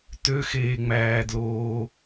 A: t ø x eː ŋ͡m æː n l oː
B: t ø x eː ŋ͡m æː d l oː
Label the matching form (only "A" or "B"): B